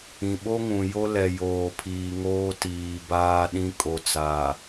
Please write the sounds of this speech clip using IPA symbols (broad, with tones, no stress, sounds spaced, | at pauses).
ĩ˨ ɓ o˦ ŋ ũ˨ j o˦ l ɛ˨ j oː˨ pʰ iː˨ ŋ oː˦ t iː˨ b aː˦ ɗ ĩ˦ kʼ o˨ t͡s aː˨